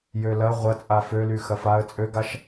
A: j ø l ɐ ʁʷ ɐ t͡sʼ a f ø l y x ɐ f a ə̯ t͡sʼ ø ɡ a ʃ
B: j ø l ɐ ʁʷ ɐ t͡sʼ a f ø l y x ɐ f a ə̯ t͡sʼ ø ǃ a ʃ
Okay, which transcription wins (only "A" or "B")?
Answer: A